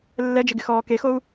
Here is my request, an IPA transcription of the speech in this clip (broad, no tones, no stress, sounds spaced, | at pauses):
lː ɛ d͡ʒ ɪ ɡ ɪ x ɔː k e x o u̯